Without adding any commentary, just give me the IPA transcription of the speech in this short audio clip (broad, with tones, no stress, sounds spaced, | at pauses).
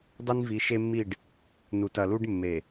dˤ i˦ n v i˨˦ ʃ e˦ mː i˦˨ ɖ | n u˨ t ɐ˨ l u˦ ɖ mː e˨